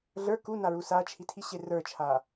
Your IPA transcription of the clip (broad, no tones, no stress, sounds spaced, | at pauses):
ɮ ə˞ k u n a ɹ u s a t͡ʃʰ i tʰ i ɕ e r ə˞ t͡ʃʰ a